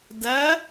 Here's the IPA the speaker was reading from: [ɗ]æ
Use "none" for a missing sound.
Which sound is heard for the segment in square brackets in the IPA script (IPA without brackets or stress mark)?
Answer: d